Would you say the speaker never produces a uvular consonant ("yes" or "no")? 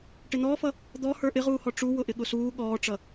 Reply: no